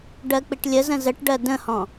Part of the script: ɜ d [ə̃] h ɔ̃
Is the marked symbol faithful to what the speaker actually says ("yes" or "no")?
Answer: yes